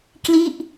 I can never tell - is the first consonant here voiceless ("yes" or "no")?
yes